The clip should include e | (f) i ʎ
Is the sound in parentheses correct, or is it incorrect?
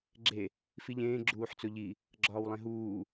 correct